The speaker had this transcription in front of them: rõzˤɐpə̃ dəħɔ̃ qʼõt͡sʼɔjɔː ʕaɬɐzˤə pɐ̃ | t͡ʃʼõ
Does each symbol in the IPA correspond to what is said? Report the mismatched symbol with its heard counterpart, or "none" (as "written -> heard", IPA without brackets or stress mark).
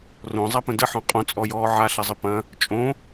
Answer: none